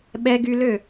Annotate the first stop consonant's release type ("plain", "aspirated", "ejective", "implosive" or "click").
implosive